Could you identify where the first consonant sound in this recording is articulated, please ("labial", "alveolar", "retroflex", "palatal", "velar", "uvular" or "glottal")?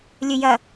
alveolar